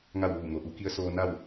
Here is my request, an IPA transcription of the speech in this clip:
ŋ a˥˨ w ʋ uː˧˩ ŋ o˩ ʔ u˩˧ k i˧˥ ə̯ s oː˧ n a˥˨ w

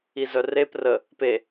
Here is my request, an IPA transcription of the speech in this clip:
i z œ r e p r ə | p e

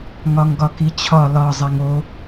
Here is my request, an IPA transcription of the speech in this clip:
ŋ ɒ ŋ ɡ ɒ k i t͡ɕʰ ɒ l ɒ zˤ ɛ ŋ o

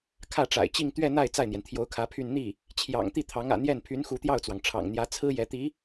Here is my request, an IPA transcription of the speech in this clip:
kʰ ä˥˩ ʈ͡ʂ a̰˨˩ ɪ̯ t͡ɕ i˥˧ ŋ t̪ ɥ ɛ˥˧ n̪ a˥˧ ɪ̯ t͡s a˥˩ ɪ̯ n̪ j ɛ˩ n t̪ʰ j o˧˥ ʊ̯ kʰ ä˧˥ pʰ y˥˧ n n̪ i˥˩ | t͡ɕʰ j ɑ̰˨˩ ŋ t̪ i˥˩ t̪ʰ ɑ˧˥ ŋ ä̰˨˩ n̪ j ɛ˥˩ n pʰ y˧˥ n x u˧˥ t̪ j ɑ˥˩ ʊ̯ t͡s w ɑ˩ ŋ ʈ͡ʂʰ ɑ̰˨˩ ŋ n̪ j ä˧˥ t͡sʰ ɹ̩˥ j ɛ˧˥ t̪ i˧˥

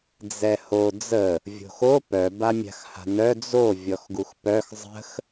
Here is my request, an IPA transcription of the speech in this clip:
d͡z ɛ h o d͡z ə | vʲ o̤ x o p œ b a mʲ a̤ x h a̤ n œ d͡z o vʲ ɔ x ɡ u x p œ x zˤ ə̤ x

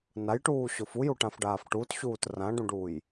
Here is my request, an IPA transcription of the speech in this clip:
n a j ʈ uː ɕ ʊ f u j u ʈ ã f ɖ aː f ʈ u t ɕ uː t r ã ɖ ũ ɖ uː j

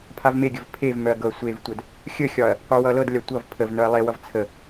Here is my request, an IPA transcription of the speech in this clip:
pʰ a v m e ɡʲ ə v pʰ e v m œ ɐ̯ ɡ ɤ ɐ̯ sʷ e v tʷ œ d | xʲ ə xʲ ɒ ɐ̯ | qʷ œ w ʌ l ɤ d lʲ a tʷ ʌ v pʰ ə v n œ ɐ̯ lˠ e w ʌ v t͡sʰ ə

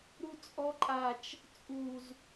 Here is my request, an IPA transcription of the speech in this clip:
ɾ u t͡sʼ ɔ ǃʼ a t͡ʃ | t͡sʼ u z

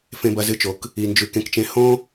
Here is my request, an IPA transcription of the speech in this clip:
f ẽ˧ b ɐ˧ z ɨ˧ t͡ʃ o˩ k | i˧ n d͡ʒ ʉ˧ k ẽ˧ k t͡ʃ ẽ˧ h õ˥

